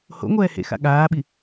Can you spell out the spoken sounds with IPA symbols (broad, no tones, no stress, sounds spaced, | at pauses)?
h o̰ ŋʷ ɛː h ḛ x a̰ ɠ aː ɓ i